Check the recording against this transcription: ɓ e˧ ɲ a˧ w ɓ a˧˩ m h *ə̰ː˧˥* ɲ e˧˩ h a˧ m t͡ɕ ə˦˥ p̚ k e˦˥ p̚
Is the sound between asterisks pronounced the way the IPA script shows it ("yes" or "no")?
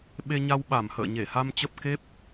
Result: no